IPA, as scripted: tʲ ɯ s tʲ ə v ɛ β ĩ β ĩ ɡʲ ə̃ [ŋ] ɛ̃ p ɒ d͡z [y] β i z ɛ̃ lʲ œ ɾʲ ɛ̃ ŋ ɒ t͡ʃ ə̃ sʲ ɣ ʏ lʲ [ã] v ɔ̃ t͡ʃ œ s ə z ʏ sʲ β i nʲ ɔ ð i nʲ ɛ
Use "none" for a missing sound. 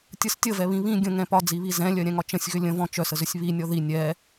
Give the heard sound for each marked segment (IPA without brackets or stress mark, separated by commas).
ŋ, i, ə̃